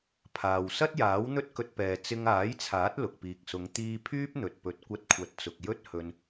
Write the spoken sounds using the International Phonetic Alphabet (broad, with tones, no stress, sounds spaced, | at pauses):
pʰ aː˨ w s ɐ˥ t̚ j aː˨˥ w n̪ ɵ˥ t̚ k ɵ˧ t̚ p ɛː˨ t͡s ɪ˧ ŋ aː˨˥ j t͡sʰ aː˨˥ t̚ l ʊ˨ k̚ p iː˨ k̚ s ʊ˨˧ ŋ t̪ iː˧ pʰ yː˥ p̚ n̪ ɵ˨ t̚ p ɵ˨˥ t̚ kʷ ɐ˧ t̚ kʷʰ ɐ˨˥ t̚ t͡s ʊ˨ k̚ j ɵ˥ t̚ h ɵ˧ n